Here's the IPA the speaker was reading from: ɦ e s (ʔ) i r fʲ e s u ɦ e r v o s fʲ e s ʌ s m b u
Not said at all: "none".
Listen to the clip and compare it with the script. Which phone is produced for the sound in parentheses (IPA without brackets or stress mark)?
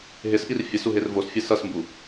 ʔ